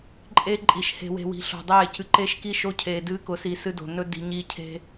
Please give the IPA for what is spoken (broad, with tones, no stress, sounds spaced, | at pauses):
ǃʼ e˦ ǃʼ i˨ ʃ h e̤˨ w e̤˨ w i̤˨ ɬ o̤˨ dˤ eː˦˨ c ɨ˨ ǃ e˦ ʃ k i˦ ʃ o˦ cʰ eː˨ d ɨː˦ k ʊ˨ s i˨ s ɨ˦ d o̤˨ n ɵ˦ d i̤˨ ɲ iː˦ cʰ e̤˦